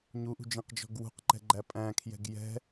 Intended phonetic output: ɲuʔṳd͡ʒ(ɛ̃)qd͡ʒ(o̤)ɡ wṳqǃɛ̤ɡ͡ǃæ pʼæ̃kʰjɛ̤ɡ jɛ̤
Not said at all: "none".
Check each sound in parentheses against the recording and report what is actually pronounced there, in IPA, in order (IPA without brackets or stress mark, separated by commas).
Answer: ẽ, ɔ̤